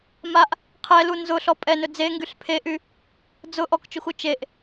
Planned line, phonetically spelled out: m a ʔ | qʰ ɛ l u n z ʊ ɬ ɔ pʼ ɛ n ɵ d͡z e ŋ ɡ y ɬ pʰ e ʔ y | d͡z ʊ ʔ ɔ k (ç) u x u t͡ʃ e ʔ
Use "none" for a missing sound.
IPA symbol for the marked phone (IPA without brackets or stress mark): t͡ʃ